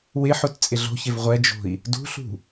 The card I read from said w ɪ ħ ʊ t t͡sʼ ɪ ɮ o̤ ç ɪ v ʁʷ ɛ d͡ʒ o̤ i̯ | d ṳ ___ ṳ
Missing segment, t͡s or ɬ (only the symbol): ɬ